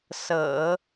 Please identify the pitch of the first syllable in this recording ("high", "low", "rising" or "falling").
low